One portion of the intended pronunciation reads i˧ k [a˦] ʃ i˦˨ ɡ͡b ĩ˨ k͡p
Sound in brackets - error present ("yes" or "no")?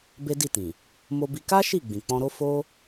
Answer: no